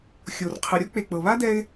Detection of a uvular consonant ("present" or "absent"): present